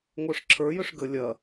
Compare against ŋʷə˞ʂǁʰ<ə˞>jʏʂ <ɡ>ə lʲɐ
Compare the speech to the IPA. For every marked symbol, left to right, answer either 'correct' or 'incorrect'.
correct, correct

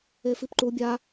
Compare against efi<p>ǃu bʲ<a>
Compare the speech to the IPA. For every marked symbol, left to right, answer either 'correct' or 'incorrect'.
correct, correct

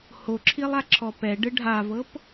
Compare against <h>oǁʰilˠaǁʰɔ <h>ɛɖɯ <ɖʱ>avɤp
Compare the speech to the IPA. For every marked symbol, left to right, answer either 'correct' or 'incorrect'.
correct, incorrect, correct

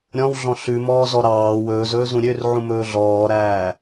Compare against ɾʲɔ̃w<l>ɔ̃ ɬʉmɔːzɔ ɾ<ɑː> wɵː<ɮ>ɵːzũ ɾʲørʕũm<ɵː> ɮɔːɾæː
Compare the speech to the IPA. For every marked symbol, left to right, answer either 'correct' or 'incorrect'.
incorrect, correct, incorrect, correct

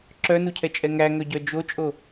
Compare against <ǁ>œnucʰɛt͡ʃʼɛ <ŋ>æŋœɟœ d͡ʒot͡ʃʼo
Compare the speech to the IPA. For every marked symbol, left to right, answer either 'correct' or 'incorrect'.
correct, correct

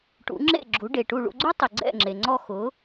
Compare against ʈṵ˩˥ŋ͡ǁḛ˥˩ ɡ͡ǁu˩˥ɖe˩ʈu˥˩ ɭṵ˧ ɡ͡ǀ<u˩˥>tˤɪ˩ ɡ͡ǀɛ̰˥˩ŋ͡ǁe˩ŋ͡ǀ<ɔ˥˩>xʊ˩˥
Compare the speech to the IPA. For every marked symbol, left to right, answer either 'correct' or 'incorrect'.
incorrect, correct

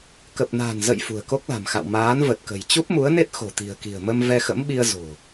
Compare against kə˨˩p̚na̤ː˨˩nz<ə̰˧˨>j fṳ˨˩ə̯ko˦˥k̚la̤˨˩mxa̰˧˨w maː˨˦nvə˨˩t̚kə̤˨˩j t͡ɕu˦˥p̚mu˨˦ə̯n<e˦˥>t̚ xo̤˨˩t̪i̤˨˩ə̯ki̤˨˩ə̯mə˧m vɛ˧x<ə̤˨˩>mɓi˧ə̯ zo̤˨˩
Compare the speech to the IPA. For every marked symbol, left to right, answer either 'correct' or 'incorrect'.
correct, correct, incorrect

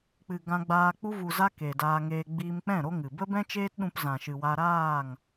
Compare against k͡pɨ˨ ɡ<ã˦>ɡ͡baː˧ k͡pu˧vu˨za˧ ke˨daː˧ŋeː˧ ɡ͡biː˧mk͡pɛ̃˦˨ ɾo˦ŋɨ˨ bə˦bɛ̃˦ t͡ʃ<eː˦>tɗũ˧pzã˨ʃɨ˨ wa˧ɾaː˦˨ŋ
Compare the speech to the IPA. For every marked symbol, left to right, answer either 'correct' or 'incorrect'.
incorrect, correct

